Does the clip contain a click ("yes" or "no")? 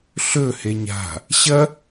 no